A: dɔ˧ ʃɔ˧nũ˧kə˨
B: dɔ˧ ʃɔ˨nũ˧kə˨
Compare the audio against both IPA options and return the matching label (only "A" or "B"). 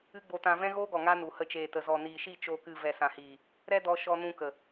A